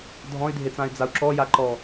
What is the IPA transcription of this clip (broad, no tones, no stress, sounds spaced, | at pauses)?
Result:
dʱ ɔ̃ y̯ dʱ e t͡s ã y̯ d͡z a u̯ ǁ ɔ j a ǃ ɔ